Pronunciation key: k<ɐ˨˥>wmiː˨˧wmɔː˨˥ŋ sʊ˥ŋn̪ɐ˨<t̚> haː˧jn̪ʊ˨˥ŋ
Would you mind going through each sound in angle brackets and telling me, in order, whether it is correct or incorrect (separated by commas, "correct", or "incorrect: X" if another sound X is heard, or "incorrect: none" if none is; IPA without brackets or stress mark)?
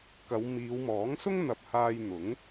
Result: incorrect: ɐ˨˧, incorrect: p̚